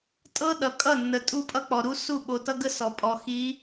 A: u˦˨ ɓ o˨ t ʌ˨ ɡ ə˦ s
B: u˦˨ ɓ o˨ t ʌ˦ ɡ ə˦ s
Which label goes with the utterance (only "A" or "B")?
B